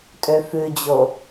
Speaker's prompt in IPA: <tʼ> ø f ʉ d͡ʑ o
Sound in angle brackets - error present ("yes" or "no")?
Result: no